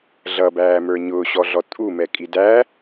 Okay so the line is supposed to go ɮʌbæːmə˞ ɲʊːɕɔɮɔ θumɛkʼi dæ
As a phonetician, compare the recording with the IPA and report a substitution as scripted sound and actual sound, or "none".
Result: θ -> tʼ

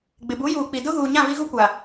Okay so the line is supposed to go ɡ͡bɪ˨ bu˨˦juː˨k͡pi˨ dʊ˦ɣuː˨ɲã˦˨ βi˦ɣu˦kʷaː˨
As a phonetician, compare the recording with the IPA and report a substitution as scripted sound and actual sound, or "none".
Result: aː˨ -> a˨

